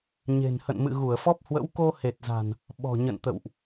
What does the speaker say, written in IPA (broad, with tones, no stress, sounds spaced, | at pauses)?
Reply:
ɲ e̤˨˩ n h ə̰˧˨ n m ɨ̰˧˨ ɣ u˧˩ ə̯ f ɔ˦˥ p̚ h w ə̰˧˥ w k o˧ h e˨˩ t̚ z a̤˨˩ n | ɓ ɔ̤˨˩ ɲ ə̰˧˨ n t̪ ə̰˧˨ w ʔ